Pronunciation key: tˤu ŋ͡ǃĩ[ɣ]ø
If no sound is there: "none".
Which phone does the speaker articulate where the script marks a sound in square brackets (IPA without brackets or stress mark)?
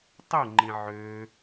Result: ʕ